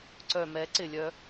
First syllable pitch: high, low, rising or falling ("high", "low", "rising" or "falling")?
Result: low